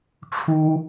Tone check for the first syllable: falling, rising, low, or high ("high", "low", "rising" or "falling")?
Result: high